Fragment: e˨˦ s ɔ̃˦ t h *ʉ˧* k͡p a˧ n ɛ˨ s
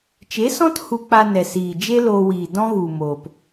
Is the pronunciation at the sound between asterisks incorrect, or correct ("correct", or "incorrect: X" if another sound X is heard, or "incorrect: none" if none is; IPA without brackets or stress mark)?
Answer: incorrect: u˧